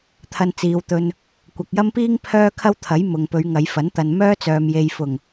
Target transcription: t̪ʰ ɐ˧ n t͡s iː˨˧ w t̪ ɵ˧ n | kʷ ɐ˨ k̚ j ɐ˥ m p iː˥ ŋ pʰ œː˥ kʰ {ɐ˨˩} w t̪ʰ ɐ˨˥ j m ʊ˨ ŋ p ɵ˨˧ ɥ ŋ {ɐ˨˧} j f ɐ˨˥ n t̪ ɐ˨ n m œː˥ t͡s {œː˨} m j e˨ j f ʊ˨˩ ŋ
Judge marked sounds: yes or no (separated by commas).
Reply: no, yes, yes